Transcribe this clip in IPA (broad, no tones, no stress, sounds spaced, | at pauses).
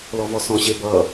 l ɔ v ɔ s ɔ̃ ɕ e b ʌ